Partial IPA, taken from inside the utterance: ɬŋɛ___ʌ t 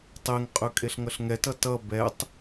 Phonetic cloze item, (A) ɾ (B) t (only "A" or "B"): B